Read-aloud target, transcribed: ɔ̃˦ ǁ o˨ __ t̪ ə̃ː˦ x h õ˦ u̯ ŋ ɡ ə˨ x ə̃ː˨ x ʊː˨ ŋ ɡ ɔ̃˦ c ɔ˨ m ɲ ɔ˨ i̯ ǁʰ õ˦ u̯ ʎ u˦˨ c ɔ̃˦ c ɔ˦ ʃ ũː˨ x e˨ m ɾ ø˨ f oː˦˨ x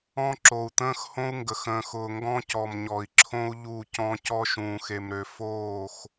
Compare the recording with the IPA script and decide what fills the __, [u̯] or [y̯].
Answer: u̯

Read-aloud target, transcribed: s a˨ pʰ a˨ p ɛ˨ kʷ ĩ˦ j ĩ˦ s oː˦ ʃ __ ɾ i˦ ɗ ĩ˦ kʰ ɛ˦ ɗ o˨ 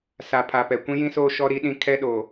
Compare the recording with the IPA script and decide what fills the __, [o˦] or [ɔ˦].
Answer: ɔ˦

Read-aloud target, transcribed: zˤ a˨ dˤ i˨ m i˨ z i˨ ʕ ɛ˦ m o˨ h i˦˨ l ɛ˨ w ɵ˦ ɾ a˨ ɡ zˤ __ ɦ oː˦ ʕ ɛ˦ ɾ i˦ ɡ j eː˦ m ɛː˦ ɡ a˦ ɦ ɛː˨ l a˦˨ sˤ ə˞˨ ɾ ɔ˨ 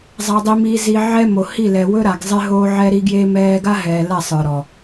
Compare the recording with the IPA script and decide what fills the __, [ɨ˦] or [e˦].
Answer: e˦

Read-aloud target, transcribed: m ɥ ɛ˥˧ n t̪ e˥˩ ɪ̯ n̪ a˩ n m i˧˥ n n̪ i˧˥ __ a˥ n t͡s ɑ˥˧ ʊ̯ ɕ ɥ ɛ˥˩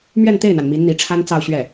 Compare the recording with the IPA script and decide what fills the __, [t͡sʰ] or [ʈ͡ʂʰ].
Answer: ʈ͡ʂʰ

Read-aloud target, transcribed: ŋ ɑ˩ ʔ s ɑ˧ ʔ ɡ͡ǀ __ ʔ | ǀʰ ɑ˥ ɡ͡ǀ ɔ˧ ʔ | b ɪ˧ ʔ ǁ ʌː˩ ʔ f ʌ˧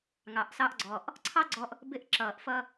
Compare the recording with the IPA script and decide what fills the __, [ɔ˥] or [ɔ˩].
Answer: ɔ˩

